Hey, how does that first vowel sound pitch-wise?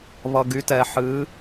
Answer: low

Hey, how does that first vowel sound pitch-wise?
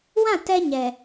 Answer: falling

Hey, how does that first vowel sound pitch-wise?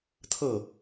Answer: falling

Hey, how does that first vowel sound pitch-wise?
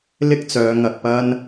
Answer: high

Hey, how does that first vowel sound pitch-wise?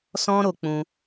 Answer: high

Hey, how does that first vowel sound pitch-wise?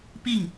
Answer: falling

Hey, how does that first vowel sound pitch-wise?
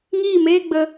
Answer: falling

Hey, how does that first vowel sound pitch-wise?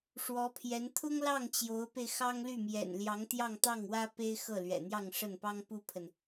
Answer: rising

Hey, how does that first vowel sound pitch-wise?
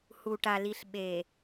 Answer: low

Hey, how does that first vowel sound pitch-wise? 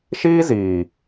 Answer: high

